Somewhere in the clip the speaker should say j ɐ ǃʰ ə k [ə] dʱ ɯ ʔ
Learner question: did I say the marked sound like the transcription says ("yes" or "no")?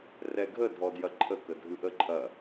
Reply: yes